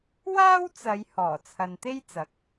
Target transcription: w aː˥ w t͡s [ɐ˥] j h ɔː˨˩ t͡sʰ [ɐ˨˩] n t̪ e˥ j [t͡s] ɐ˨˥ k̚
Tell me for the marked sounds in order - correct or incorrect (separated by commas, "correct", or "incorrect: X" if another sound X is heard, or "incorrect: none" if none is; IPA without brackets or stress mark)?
incorrect: ɐ˨˧, incorrect: ɐ˨, correct